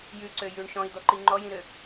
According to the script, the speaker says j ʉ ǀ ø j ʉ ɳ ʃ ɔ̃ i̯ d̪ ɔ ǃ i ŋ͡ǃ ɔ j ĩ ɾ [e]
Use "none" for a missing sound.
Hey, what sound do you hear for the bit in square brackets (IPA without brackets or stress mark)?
ø